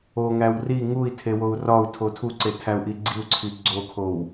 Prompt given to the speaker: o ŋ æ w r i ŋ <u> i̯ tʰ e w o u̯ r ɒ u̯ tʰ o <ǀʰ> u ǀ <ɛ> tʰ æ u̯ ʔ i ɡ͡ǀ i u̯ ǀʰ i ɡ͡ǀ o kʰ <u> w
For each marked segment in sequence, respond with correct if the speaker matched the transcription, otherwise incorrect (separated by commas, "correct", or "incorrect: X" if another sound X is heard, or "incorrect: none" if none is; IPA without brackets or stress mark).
correct, incorrect: tʰ, incorrect: e, incorrect: o